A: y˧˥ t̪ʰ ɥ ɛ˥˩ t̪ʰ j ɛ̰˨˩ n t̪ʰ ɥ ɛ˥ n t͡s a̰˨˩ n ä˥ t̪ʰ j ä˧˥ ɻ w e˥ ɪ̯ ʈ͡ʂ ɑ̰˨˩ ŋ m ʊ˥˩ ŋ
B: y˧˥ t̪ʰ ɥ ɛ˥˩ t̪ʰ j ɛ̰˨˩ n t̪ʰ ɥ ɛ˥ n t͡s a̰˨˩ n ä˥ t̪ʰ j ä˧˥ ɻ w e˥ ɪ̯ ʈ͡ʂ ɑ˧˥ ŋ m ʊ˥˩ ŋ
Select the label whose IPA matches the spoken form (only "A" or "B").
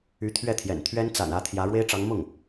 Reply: B